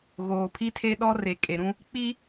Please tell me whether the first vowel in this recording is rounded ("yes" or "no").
yes